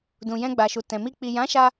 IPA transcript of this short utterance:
dũ˨jɛ̃˧ɡ͡ba˨ʃu˨ tɛ̃˨mi˧ k͡pi˨jã˨˦ʃa˧

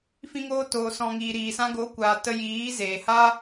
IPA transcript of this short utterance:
fĩ˧ŋoː˧toː˨sɔ̃˨ ŋiː˨ɾiː˨sã˧ ɡo˨˦kʷaː˨ tə˧jiː˨˦ zeː˨ha˦

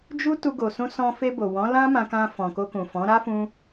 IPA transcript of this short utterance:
d͡ʒu˦ tu˧ɡo˨sũ˧sɔ̃˧ fe˧bo˨wɔ̃˨˦ lã˦mã˧kã˧ fɔ̃˨ko˧kũ˨fɔ̃˨˦ ɾa˦fũ˧

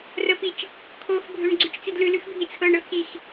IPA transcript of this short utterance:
rəpit͡ʃ | kʰoxbʱøɳ ɡ͡ǀʉt͡ʃt͡sidlʉlʉx bʱit͡sʰɤɳɤ xix

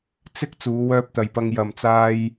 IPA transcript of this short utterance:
t͡sɪ˧k̚ t͡suː˨˧wœː˧p̚t̪ɐ˨jpɐ˧ŋ jɐ˨mt͡saː˧j

